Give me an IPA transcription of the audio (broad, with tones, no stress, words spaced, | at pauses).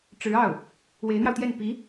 ʈ͡ʂɻ̩˧˥ɑ˥˩ʊ̯ | we˧˥ɪ̯n̪jɑ˧ʊ̯t̪jɛ˥˩n pi˧˥